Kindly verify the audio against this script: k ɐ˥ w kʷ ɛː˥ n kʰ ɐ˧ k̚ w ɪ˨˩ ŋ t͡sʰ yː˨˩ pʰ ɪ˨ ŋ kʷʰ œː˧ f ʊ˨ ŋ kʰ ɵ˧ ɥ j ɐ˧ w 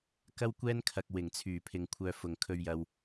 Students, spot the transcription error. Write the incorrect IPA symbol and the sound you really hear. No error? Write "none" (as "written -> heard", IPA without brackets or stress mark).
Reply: none